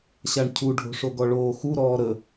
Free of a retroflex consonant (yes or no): no